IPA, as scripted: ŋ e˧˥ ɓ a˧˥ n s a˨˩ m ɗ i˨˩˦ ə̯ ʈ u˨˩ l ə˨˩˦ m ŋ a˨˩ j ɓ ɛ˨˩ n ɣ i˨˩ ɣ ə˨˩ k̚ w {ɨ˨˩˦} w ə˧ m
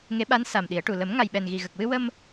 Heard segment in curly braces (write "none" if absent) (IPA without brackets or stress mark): ɨ˧